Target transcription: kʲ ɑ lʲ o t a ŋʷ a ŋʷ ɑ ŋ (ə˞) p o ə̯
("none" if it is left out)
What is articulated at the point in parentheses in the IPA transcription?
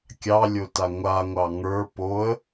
ə˞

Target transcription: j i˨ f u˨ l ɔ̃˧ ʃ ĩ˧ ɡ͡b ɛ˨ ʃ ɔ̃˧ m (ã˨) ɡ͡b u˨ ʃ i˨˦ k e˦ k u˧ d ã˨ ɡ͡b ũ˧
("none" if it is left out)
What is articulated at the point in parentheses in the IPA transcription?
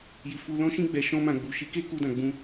ã˨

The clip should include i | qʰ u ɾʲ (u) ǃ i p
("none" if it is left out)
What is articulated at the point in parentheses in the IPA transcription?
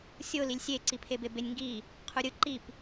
ɯ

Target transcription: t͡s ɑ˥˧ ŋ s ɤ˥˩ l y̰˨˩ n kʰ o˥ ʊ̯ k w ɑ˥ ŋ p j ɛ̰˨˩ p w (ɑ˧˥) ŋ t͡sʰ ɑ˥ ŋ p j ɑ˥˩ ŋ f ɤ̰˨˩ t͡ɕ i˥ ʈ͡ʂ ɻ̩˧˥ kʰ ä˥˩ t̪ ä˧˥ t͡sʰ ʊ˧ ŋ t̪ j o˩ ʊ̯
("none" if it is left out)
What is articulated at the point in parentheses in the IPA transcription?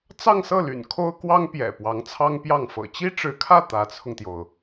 ɑ˧˥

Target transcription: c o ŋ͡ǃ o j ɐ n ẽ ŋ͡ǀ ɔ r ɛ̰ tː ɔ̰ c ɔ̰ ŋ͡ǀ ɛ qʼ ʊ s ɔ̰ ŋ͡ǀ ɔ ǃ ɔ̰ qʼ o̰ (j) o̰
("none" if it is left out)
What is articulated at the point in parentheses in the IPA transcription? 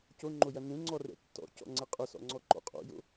j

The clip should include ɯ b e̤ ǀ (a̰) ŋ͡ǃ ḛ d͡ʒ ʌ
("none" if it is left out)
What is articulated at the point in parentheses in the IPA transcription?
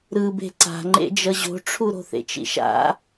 a̤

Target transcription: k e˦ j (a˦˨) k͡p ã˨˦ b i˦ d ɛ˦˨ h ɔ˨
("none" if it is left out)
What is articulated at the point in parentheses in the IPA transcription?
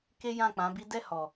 ã˦˨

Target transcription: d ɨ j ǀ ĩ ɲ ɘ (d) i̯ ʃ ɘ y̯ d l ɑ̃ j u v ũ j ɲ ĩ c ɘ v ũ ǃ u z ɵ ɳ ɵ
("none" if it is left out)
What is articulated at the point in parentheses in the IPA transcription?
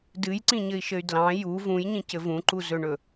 none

